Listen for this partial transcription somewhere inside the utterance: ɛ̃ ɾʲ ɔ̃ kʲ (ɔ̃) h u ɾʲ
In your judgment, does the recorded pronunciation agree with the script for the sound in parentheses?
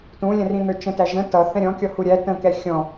no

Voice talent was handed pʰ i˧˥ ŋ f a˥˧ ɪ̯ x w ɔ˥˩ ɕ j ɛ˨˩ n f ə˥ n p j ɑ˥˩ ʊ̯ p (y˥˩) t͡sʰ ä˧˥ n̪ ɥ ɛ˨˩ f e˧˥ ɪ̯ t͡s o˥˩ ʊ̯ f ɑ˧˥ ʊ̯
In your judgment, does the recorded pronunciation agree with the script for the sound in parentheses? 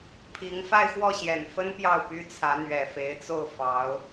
no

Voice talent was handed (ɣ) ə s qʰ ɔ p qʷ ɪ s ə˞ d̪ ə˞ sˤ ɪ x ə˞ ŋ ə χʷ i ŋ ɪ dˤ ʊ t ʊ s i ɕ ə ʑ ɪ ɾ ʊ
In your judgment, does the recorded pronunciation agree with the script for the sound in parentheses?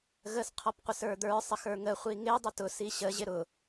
yes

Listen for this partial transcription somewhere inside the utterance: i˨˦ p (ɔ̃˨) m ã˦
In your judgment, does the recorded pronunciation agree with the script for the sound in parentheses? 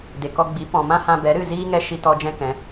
yes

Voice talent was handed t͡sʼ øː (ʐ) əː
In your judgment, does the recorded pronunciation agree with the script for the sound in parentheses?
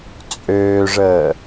yes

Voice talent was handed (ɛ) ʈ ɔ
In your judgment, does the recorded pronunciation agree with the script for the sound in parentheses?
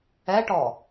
yes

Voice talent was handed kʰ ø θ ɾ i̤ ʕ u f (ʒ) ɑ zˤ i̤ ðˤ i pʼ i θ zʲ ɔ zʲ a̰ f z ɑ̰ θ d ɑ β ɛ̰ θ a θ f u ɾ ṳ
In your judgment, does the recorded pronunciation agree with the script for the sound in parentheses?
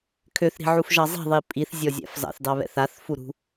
yes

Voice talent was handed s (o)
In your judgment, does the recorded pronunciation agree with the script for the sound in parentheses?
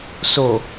yes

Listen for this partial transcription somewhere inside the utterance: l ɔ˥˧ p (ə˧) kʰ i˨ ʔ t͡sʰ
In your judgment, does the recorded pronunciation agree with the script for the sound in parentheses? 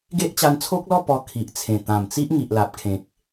no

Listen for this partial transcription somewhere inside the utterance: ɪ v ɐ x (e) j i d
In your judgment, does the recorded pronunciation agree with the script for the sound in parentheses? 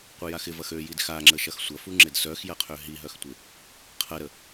no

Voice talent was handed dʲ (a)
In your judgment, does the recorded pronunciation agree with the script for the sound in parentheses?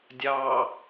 no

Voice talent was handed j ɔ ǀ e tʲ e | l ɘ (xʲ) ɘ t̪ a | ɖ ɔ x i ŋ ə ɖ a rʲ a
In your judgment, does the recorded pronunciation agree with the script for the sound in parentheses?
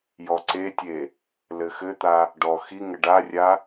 no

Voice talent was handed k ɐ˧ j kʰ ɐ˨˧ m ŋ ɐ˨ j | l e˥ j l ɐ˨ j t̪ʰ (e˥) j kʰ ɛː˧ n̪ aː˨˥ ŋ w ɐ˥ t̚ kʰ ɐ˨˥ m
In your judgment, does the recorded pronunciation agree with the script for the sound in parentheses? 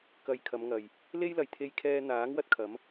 no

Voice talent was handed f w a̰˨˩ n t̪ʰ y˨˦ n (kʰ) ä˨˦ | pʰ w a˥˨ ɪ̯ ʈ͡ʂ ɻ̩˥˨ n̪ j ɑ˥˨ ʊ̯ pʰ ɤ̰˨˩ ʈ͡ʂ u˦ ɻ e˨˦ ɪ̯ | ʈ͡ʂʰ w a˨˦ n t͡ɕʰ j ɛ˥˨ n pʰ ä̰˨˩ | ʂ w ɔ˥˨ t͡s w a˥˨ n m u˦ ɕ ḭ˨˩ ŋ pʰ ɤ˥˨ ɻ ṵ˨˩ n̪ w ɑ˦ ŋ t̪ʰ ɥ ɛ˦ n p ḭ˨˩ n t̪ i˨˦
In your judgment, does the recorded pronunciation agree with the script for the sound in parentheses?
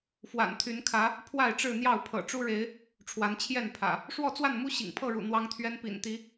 yes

